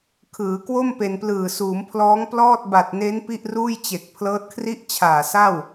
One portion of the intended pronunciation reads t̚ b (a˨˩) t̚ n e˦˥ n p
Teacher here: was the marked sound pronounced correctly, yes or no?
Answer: yes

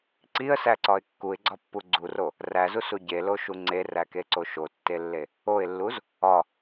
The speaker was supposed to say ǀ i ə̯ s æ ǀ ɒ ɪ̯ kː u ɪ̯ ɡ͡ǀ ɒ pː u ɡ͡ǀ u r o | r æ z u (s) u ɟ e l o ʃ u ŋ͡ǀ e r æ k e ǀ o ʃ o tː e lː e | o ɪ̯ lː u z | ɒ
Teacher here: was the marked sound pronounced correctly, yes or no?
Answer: yes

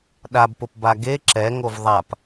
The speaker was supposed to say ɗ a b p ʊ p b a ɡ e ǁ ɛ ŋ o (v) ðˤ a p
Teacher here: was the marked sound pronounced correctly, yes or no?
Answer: yes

